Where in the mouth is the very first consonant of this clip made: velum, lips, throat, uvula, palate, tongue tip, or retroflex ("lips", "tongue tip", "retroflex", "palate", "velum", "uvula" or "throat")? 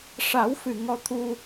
retroflex